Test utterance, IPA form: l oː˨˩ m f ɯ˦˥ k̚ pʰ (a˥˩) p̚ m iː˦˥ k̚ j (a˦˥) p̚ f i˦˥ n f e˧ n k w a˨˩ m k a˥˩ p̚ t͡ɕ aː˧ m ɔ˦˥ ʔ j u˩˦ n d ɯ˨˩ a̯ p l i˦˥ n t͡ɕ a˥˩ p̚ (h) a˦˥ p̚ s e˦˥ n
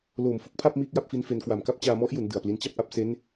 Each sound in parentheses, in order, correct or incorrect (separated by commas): correct, incorrect, incorrect